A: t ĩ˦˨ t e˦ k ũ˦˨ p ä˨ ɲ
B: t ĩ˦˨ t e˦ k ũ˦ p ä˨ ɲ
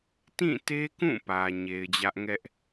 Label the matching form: A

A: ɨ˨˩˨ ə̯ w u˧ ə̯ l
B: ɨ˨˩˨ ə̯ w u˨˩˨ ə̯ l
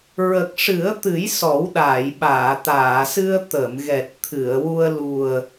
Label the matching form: A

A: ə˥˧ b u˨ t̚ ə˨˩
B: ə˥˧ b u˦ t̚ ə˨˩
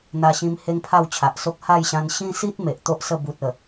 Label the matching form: A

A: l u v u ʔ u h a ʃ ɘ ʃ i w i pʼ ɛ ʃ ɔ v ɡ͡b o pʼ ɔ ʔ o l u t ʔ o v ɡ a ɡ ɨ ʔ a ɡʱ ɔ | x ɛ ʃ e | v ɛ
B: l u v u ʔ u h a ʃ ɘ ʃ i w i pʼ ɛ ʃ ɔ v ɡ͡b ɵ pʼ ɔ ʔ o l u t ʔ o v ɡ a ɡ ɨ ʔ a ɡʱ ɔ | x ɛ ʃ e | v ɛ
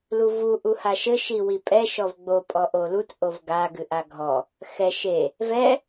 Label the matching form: A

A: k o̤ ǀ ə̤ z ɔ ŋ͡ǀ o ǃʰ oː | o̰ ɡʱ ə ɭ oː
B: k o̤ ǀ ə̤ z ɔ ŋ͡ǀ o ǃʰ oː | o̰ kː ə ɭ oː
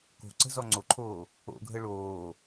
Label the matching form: A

